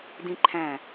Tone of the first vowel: high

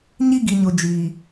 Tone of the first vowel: high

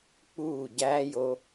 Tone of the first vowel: falling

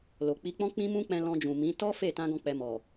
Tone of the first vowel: low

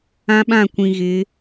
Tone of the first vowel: high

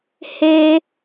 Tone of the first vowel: high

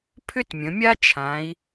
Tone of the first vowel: high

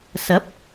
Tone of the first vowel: rising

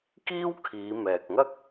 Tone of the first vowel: high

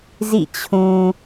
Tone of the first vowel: falling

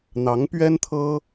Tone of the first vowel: rising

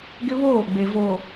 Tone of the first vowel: high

